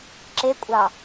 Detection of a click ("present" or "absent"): present